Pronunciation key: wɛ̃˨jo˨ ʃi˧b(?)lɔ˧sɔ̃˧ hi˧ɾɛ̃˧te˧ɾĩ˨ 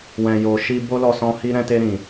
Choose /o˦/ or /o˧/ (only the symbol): o˦